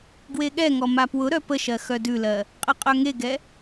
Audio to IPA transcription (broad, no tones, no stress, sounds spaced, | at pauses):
ɡ w e ɠ ɛ ŋ ɔ m a p w ʊ ɾ œ p ə ʃ ɜ x œ d ʉ l ɜ | qʼ ə qʼ œ ŋ e ɡ ɛ